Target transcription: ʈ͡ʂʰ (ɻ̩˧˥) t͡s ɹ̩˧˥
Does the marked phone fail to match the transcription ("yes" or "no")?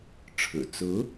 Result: yes